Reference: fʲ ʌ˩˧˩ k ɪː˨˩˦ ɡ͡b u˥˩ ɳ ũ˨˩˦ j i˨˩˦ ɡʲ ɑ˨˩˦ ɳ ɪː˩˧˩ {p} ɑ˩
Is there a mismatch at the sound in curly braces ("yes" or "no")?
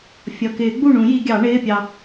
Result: yes